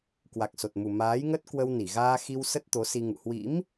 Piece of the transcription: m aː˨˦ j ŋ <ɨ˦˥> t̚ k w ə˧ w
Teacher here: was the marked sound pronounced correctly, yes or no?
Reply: no